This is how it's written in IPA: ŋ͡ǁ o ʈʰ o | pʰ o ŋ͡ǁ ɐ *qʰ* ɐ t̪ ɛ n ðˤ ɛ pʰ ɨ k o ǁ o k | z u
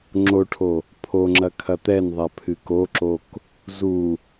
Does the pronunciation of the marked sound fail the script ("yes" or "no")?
yes